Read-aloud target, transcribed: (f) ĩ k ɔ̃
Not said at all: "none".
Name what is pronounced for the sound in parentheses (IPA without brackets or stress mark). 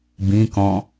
b